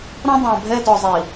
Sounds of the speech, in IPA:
ɾ ɔ̃˦ dˤ œ̃˨ bʱ ɛ˦ d ɔ˨ zˤ i˨

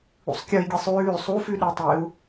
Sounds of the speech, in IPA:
ṵ sˤ kʲ ʌ i̯ ɡʲ e sˤ ʉː sˤ u f ʉ ɗ e tˤ e u̯

